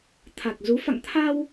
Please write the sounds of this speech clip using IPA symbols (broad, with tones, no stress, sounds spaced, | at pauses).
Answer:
t̪ʰ a˨˩ k̚ z u˨˦ f a̰˧˨ ŋ t̪ʰ a˧ w